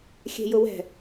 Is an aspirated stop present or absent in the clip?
absent